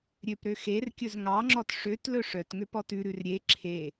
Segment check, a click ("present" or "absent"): present